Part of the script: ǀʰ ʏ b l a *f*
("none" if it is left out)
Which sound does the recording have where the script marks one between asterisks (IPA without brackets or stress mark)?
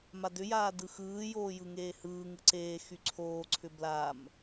m